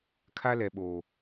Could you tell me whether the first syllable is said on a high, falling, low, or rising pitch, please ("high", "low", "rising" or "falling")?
high